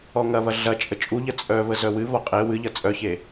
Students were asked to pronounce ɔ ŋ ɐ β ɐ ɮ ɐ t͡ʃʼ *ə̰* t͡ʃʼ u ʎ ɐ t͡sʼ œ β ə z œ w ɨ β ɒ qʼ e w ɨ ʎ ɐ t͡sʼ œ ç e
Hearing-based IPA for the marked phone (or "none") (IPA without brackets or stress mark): ə